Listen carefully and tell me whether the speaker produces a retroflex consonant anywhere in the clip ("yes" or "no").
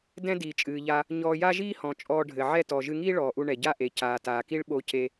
yes